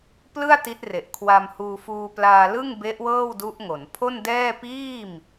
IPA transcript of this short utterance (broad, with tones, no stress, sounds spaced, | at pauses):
p l ɯ˥˩ a̯ t i˦˥ t̚ r e˨˩ ʔ kʰ w a˧ m h uː˧ f uː˧ p l aː˧ l ɯ˥˩ ŋ b e˦˥ ʔ w ɤː˥˩ w d u˦˥ ʔ ŋ o˩˦ n pʰ o˥˩ n d ɛː˥˩ p iː˥˩ m